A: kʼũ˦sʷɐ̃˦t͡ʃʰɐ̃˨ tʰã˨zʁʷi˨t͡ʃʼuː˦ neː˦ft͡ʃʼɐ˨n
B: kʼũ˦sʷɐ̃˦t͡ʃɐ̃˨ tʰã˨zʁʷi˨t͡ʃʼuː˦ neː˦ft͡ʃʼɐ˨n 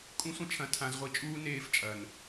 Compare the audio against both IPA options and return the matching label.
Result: A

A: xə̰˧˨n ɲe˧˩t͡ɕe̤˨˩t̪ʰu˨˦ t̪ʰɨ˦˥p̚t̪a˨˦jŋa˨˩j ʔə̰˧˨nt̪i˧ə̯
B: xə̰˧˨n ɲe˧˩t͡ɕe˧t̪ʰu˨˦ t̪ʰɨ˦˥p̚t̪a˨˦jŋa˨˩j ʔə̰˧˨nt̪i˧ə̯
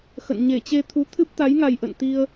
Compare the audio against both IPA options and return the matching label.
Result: B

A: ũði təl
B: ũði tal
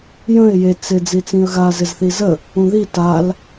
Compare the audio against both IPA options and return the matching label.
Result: B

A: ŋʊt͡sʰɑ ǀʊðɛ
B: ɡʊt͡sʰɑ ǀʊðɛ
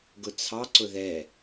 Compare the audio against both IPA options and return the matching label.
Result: B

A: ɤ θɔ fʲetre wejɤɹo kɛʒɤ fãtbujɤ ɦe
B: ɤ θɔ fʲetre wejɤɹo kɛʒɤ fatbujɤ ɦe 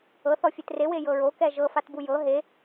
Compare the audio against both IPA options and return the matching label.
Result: B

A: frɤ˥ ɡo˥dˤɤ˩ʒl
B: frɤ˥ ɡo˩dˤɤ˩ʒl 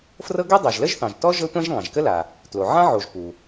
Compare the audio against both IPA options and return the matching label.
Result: A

